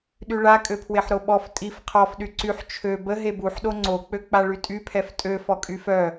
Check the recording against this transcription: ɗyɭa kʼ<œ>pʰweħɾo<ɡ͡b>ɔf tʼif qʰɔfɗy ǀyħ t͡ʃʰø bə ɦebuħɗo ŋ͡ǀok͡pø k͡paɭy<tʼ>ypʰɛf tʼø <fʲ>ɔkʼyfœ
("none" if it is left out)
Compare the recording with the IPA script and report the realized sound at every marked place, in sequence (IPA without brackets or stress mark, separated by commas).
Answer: ø, ɓ, tʼ, f